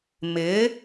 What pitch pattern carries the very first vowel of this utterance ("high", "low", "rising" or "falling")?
rising